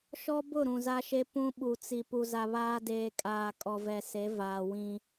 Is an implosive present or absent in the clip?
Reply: present